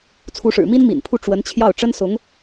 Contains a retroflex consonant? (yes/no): yes